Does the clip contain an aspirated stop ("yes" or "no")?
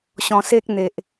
no